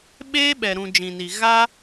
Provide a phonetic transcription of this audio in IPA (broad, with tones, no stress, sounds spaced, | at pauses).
ɓ eː˦ ɓ ɛ˨ ɾ ũ˨ d͡ʒ ĩ˨ n i˨ ɣ a˦